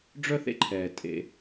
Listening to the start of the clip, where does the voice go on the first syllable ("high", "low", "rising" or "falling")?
high